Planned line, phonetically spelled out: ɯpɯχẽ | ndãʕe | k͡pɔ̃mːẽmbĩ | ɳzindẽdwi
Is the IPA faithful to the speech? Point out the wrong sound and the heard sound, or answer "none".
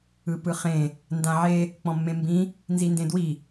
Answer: ɳ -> n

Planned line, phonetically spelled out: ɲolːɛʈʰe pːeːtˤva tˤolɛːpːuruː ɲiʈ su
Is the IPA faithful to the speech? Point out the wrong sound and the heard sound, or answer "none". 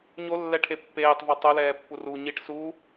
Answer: none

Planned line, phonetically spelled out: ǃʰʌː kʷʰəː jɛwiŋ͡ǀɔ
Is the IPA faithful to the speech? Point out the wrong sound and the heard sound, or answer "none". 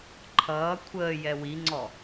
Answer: none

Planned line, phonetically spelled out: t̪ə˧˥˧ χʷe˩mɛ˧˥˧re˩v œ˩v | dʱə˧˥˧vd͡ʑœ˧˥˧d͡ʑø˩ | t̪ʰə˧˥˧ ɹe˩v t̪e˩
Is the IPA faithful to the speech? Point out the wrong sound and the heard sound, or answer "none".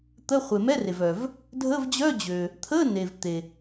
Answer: ɹ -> n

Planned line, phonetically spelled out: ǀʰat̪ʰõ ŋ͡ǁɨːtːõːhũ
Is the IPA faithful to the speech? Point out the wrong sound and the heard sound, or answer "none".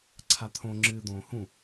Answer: tː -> d̪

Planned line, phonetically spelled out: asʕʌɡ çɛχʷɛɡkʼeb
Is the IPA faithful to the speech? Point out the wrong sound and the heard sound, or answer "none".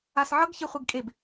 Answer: none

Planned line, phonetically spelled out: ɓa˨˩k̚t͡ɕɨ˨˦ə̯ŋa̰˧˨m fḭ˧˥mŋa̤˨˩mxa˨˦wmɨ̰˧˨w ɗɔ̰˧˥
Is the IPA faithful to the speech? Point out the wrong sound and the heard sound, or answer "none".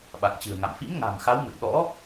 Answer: ɨ˨˦ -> ɨ̤˨˩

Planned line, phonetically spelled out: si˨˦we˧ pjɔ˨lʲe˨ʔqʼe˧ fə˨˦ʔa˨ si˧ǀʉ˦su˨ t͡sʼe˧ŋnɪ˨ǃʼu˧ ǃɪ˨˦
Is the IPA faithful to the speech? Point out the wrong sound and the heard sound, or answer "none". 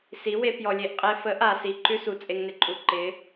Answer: ǀ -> ǃ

